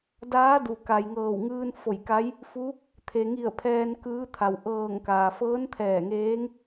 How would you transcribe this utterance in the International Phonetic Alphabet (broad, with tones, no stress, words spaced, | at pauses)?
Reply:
daː˧˥du˩ ka˩j ŋɤː˧˩wŋɯː˧nfo˧˩jka˧˥j | fu˧˥ | t̪ʰe˩ŋi˧˩ə̯ pʰɛː˧nkɯː˧˥t̪ʰa˩w ʔɤː˧˩ŋkaː˩ fɤː˧˥nt̪ʰɛː˧˩ŋeː˧˥ŋ